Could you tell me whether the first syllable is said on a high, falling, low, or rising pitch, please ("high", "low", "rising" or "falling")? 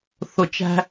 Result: low